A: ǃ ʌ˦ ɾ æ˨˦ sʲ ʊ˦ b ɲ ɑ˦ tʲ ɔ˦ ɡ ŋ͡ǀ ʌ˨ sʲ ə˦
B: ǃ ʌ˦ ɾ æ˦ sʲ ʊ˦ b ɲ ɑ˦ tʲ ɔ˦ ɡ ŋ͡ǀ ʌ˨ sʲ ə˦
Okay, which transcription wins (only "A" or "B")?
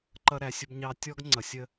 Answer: A